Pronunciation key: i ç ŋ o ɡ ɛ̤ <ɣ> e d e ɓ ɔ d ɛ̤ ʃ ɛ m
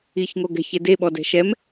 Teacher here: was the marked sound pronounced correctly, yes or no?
no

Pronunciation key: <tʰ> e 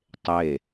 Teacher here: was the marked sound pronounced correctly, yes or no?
no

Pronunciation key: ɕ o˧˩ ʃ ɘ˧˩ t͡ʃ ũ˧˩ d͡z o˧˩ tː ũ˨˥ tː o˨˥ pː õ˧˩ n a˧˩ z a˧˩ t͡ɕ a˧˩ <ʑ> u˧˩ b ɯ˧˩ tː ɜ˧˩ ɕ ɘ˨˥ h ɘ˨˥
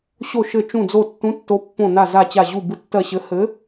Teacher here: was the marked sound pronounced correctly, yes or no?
yes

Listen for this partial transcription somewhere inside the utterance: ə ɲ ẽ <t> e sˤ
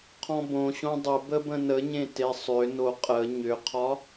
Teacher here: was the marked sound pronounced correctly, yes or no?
yes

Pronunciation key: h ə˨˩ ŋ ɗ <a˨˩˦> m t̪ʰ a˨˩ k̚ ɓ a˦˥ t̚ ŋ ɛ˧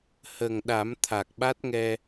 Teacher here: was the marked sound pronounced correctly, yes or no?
yes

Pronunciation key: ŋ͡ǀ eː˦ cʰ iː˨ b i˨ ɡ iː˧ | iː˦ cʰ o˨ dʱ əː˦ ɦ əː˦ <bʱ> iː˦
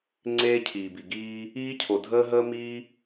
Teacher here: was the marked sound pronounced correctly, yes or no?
no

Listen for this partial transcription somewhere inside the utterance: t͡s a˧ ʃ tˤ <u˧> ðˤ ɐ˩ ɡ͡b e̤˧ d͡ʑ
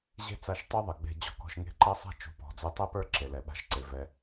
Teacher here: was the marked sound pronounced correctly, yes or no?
no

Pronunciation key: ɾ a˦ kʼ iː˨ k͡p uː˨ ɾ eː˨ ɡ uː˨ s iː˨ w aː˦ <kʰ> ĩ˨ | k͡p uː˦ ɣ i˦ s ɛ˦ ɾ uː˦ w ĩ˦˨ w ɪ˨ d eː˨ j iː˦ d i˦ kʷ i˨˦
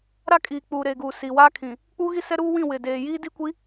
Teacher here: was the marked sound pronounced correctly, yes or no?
yes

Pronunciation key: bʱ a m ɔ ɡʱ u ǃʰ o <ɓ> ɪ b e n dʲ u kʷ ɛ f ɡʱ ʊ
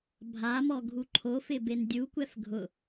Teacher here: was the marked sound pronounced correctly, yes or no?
no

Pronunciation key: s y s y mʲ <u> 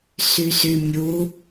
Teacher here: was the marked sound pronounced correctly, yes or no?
yes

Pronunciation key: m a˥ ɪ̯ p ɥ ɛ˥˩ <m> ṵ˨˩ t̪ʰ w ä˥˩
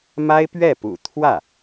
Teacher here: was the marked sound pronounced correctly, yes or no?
no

